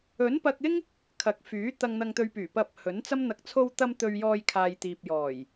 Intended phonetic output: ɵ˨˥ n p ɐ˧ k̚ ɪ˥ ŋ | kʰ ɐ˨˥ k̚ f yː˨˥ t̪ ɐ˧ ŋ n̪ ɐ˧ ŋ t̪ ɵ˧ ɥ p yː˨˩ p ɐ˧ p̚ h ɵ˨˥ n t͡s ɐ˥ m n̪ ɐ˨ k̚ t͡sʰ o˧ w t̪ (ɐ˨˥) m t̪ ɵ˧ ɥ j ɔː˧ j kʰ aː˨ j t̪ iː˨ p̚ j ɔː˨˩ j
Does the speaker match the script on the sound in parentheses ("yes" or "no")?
no